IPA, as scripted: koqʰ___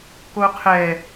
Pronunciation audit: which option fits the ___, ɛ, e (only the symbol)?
ɛ